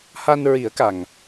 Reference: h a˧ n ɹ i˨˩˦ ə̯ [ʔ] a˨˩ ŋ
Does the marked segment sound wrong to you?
yes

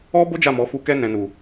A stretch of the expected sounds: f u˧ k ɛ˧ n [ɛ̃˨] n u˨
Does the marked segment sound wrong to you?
no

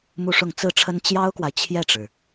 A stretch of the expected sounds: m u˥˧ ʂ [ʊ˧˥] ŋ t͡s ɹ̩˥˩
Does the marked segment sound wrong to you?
yes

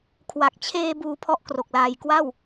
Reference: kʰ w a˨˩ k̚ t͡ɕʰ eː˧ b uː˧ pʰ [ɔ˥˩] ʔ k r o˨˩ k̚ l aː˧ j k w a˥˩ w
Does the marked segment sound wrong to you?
no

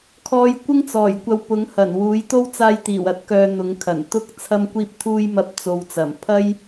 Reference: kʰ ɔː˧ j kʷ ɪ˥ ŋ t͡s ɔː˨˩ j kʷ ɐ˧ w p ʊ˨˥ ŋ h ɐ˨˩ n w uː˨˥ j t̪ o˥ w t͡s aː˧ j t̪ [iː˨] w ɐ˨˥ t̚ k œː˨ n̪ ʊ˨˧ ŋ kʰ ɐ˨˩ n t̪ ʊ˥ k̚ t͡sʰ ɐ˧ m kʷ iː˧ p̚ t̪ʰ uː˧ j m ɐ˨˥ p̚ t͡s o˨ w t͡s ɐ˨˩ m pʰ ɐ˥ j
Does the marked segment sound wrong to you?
yes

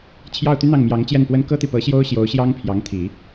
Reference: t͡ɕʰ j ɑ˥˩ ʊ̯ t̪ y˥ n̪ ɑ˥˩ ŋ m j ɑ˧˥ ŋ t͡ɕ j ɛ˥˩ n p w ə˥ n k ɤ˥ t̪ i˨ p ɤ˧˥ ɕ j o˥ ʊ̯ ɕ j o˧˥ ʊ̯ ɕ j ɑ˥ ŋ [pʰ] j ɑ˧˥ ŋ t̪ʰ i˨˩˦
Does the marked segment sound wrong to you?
no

